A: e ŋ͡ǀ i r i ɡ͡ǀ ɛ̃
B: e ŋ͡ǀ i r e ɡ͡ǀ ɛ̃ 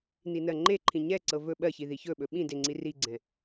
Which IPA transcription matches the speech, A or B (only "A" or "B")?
A